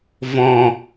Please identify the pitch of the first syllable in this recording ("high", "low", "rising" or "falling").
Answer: low